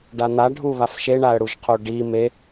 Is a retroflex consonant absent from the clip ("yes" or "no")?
no